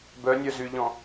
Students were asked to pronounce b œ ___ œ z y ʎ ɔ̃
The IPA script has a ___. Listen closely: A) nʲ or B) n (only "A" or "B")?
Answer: A